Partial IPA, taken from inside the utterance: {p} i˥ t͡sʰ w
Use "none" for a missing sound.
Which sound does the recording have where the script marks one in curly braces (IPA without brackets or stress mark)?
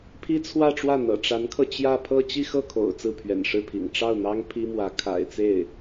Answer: pʰ